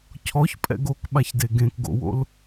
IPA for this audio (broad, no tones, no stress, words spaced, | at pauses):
cʰɔçpʼɛ̰ɡ okɓaçde ɡẽkɡo̰wo̰l